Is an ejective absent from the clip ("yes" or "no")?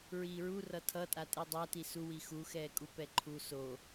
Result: no